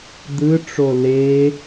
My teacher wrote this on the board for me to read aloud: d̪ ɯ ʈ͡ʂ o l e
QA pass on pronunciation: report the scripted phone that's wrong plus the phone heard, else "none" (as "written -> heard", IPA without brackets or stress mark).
none